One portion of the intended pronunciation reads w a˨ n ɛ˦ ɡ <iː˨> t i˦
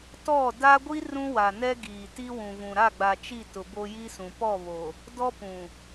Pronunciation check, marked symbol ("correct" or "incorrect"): correct